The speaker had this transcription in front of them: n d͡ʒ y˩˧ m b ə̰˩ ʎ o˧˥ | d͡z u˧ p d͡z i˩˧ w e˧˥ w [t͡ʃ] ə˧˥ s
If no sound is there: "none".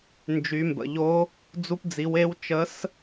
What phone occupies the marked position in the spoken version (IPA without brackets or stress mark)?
t͡ʃ